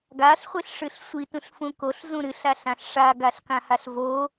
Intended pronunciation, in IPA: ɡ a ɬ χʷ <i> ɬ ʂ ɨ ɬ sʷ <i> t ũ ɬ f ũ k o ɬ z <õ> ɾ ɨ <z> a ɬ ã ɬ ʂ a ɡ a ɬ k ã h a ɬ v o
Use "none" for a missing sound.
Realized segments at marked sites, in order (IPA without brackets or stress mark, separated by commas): i, i, ũ, ɬ